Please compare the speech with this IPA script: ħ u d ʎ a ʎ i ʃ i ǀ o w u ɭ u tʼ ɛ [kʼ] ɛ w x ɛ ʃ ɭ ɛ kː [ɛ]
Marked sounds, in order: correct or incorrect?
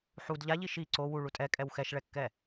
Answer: correct, correct

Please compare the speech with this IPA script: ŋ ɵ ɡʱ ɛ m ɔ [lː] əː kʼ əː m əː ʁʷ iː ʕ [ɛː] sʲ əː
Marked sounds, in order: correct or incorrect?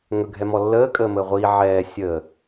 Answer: correct, correct

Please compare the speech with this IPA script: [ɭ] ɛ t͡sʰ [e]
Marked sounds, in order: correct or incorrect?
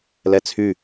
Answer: incorrect: l, incorrect: y

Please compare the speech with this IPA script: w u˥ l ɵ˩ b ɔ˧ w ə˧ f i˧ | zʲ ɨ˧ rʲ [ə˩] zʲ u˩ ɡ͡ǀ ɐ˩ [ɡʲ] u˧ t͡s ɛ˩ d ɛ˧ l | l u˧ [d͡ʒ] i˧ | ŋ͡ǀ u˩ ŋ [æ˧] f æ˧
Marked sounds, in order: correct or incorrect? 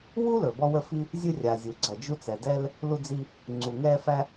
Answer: incorrect: a˩, incorrect: d͡ʒ, incorrect: d͡z, incorrect: ɛ˧

